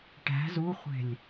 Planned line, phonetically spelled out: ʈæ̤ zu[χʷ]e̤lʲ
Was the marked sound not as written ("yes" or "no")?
no